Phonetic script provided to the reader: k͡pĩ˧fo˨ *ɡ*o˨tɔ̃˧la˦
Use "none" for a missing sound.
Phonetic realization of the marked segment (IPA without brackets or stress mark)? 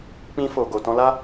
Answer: ɡ